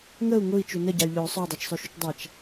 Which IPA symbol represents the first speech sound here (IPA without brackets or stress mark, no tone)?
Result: ŋ